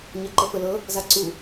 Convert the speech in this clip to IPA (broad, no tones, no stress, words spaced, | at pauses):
ɲɤǃəfəlɤ | zaǀu